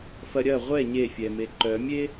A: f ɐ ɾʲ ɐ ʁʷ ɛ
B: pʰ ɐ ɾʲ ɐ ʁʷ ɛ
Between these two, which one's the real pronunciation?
A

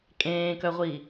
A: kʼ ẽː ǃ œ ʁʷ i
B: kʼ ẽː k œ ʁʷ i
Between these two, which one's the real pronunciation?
B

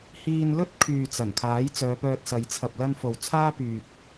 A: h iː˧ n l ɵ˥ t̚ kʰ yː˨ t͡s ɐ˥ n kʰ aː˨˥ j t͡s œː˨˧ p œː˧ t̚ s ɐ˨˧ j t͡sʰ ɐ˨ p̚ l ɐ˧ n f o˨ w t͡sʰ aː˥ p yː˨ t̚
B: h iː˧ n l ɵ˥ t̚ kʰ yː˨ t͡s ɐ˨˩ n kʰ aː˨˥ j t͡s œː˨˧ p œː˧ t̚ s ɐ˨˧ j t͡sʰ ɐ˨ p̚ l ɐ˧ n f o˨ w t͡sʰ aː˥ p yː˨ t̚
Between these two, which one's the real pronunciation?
B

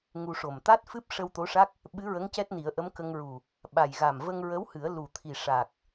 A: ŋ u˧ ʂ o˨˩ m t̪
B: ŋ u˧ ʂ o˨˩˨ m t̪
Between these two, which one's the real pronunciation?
A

